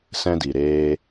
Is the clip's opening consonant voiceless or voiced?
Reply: voiceless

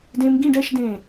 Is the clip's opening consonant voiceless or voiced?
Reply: voiced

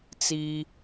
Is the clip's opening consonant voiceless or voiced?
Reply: voiceless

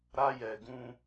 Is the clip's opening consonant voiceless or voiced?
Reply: voiced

